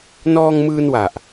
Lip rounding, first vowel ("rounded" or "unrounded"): rounded